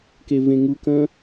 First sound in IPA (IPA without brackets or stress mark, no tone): k